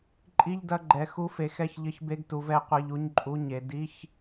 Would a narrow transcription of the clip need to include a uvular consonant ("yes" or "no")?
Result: yes